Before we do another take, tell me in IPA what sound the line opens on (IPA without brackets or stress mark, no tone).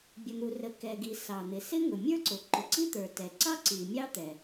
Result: bʲ